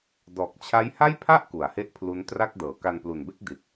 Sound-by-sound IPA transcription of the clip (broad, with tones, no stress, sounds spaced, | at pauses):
d ɔː˨˩ k̚ t͡ɕʰ a˦˥ j h a˥˩ j pʰ a˥˩ ʔ k u˩˦ a̯ h e˥˩ ʔ pʰ l u˦˥ n t r a˥˩ k̚ d ɤː˩˦ k a˧ n p l u˨˩ n b e˥˩ k̚ d i˨˩ t̚